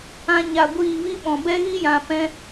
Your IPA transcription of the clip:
ã˦ ɲ a˧ ɡʷ iː˦˨ v i˦ ɓ ɔ̃˨ b ɛ˦ ɣ i˦ j ã˨ p ɛ̃˦

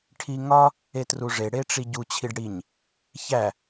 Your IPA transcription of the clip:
ʈʰ i ŋ ɒ | e t r u ʐ e ɽ e ʈ͡ʂ i ɟ u t͡ɕʰ i ɖ ɽ i ɲ | ç æ

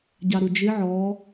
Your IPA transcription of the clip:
ɟ ɑ ɾ u d͡ʒ ɪ ʕ ɔ

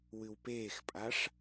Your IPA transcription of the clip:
w ɨ w p eː x pʼ a ʂ

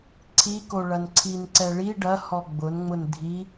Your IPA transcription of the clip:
ǀʰ i k o ɭ ɐ n ǀʰ i n ǀ ɛ ɭ i ɖ ɐ h ɔ ɡ͡b ʊ n ŋ͡m ʊ n dʱ i

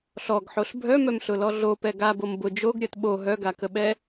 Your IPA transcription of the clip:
ɬ ɔ ɡ ħ o ɬ bʱ œ m œ m ɬ ʊ l ɔ ɮ o p ɛ ɡ a b o m b ʊ d͡ʒ o ɡ ɾʲ œ t ɓ o ɦ œ ɡ a k ə ɓ ɛ

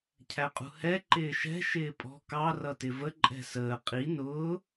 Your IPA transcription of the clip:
cʰ æ qʼ ṳ h ɛ ǃ ɪː ʃ ɛ̤ ʃ ɪː pʼ ɔ̤ k ɑ r ʌ t ɪ v ə ǃʼ ɛ̤ s əː qʼ i n ʊː

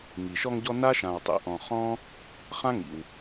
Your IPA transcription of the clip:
ŋ i˩ ʃ ɔ˦ ŋ ɟ ɔ˦ n a˥ ʃ ã˨ w tˤ ḭ˨ ʔ ɔ̃˨ χ ɔ̃˥ | χ ã˥ ŋ ḭ˩ w

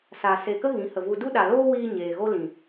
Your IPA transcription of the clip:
s a˨ s e˨ k ə˦ ɣ ĩ˨˦ h ə˨ v u˧ d u˦ ɗ a˨ l oː˦ w iː˧ ɲ eː˨ ɣ o˦ l ĩ˨

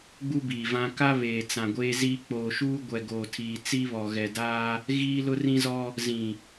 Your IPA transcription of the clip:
ɡ͡b u˦ b iː˨ v ã˦ k a˦ β eː˨ t͡s ã˨ ɡʷ eː˦ z iː˦ k͡p oː˨ ʃ uː˦ ɡʷ ɛ˨ ɡ oː˨ tʰ iː˨ t͡s i˦ β ɔ˨ ɣ ɛ˨ d aː˦ | ɣ iː˦ l ʊ˦ r ĩ˦ z ɔ˦ | z ĩ˨

